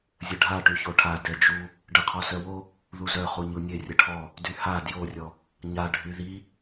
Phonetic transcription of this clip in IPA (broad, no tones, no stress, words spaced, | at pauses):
zʲəɖʱa ʈyçoʈʰa dɛd͡ʒu | ɖəqʰɔ sœwo | ðuzœχu ɲunʲe rʲəʈʰɔ | dyha djorʲɔ | ɲaɖʱy ði